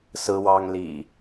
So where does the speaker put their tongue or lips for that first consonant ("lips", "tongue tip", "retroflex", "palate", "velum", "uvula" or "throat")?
tongue tip